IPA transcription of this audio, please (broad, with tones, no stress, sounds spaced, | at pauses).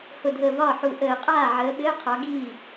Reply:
h ʊ˧˩ dʱ əː˧˩ v ɒː˥˩ ħ u˧˩ ʔ əː˧˩˧ qʼ aː˥˩ ʕ əː˨˦ ɓ ɘː˧˥˧ qʰ ɒ˨˦ ɡ iː˥˩